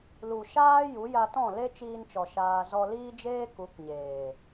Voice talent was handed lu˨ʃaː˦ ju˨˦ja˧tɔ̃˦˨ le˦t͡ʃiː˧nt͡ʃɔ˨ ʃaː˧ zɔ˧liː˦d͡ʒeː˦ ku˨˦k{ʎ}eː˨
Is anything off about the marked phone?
yes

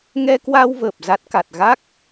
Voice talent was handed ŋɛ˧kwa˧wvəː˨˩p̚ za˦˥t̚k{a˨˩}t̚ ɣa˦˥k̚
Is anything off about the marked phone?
no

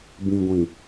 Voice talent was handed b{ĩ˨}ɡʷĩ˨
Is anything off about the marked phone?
no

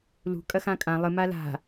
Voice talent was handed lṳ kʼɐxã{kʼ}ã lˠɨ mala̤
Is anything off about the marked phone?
no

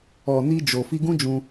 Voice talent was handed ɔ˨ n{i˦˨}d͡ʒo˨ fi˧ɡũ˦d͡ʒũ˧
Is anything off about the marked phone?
yes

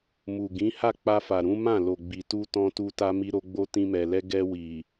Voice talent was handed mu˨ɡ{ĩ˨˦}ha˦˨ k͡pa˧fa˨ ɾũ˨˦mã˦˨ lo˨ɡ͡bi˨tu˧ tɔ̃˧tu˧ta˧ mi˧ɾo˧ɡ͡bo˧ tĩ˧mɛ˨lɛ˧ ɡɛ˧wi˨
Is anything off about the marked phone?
no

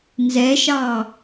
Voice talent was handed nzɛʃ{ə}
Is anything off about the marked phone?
yes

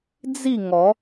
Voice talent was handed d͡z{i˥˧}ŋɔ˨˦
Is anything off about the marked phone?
no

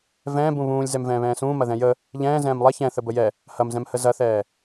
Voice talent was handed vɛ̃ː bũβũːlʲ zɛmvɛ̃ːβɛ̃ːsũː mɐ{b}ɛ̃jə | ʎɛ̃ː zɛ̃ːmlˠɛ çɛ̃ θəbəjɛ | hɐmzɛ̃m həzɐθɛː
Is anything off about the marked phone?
yes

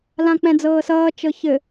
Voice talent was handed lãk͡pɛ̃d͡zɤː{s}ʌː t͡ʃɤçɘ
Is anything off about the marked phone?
no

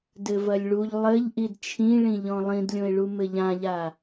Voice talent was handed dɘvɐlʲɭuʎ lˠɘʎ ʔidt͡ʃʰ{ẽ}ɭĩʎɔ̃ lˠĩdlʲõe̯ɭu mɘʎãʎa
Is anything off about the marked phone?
yes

